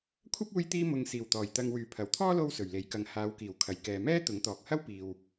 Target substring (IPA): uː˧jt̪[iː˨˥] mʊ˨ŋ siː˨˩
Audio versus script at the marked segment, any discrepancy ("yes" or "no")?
yes